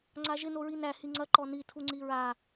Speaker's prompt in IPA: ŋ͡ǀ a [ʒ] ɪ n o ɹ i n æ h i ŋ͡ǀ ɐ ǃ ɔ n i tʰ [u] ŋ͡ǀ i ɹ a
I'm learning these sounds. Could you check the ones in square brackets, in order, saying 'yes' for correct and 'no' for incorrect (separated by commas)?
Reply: yes, yes